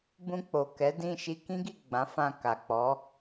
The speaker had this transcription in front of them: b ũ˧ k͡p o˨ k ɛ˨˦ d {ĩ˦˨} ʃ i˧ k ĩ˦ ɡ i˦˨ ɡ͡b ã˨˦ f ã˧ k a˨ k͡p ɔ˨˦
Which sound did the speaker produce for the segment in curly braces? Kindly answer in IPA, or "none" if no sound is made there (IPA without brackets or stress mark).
ĩ˦˨